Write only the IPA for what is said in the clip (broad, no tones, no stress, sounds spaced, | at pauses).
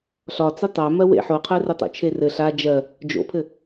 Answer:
ɬ ɒ t͡s ɘ tˤ a m ɜ w ḛ ħ o qʰ ɜ r ɘ tˤ o̰ t͡ʃʰ e r ɘ ɬ a d͡ʒ ɜ | d͡ʒ o̰ pʰ ɘ